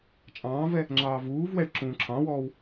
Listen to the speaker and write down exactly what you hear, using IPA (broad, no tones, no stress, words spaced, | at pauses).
t͡ʃʼɑ̃ːvɛ | ŋ͡ǁɑːvuːvwɛɭ ǁũːǁʰɑ̃wɔːw